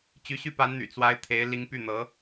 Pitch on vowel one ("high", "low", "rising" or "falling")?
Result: rising